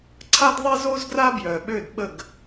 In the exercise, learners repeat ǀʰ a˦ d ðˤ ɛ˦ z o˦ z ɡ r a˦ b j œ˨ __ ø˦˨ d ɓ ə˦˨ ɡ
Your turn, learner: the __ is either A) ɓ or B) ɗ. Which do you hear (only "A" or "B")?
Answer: A